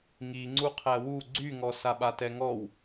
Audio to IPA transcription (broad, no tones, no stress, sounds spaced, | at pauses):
ŋ i ŋ͡ǀ u qʰ æ w u ɡ͡ǀ y ŋ ɔ s a ɓ a t ɛ ŋ ɔ w